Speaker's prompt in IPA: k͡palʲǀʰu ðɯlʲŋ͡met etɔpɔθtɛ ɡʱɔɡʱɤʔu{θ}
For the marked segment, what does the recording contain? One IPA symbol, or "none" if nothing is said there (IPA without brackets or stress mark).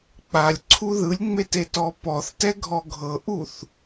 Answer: θ